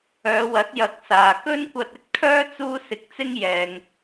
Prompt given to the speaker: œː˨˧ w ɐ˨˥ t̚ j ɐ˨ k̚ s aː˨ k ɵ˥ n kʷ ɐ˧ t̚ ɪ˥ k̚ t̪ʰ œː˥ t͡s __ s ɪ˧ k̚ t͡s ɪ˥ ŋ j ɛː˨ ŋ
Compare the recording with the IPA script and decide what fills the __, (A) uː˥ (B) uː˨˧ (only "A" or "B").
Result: A